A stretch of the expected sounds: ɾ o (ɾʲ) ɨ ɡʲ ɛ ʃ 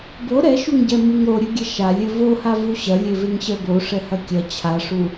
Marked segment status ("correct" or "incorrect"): correct